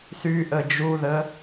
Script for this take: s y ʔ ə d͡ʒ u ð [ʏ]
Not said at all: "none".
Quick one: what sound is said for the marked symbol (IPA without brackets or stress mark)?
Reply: ə